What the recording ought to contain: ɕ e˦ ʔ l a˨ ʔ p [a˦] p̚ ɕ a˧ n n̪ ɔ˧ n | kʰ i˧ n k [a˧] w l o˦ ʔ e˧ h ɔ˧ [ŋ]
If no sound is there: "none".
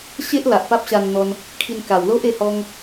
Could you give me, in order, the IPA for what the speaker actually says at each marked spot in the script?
a˦, a˨˩, ŋ

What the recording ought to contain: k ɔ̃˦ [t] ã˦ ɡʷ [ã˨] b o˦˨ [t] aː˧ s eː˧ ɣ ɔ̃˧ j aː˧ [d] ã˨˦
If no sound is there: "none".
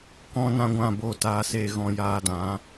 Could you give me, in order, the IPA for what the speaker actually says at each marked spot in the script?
n, ã˦˨, t, d

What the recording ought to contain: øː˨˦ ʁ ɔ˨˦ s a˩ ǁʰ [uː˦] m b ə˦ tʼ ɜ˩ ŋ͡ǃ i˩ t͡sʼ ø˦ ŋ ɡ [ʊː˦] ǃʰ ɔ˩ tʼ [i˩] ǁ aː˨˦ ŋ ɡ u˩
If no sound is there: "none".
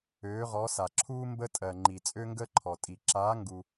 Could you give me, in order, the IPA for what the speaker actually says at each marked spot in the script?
uː˦, əː˦, i˩

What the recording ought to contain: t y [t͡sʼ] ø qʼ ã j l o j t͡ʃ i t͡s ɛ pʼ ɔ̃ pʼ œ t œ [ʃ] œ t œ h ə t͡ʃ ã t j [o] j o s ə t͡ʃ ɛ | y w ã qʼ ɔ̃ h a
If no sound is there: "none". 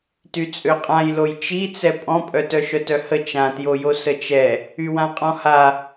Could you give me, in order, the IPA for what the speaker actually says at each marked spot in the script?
t͡sʼ, ʃ, o

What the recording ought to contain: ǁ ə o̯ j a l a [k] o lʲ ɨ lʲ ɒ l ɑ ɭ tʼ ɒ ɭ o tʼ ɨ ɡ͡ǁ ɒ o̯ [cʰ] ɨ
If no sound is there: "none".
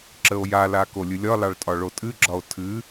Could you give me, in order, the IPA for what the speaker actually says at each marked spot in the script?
k, tʰ

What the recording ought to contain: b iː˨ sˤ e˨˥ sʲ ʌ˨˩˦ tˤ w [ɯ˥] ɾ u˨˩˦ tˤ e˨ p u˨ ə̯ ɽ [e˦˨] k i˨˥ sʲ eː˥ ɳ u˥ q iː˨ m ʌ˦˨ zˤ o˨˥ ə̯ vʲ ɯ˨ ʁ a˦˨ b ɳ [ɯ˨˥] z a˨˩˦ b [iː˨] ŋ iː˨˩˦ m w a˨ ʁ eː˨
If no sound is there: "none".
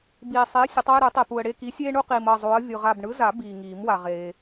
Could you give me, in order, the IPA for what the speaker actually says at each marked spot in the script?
ɯ˦˨, e˦˨, ɯ˨˥, iː˨

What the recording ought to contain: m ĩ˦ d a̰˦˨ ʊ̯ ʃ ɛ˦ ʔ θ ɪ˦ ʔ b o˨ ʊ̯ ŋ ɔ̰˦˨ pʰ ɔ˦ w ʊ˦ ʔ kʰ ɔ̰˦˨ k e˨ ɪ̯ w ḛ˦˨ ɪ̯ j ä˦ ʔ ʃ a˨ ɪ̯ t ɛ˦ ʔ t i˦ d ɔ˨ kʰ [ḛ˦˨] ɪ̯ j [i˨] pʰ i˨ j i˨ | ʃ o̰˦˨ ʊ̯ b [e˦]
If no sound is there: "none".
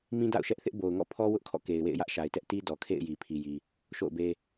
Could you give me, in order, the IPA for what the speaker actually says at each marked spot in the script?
ḛ˦˨, i˨, e˦

